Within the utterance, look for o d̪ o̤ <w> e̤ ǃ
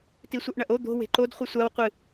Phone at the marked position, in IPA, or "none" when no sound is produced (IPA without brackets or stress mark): w